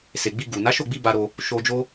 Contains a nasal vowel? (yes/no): no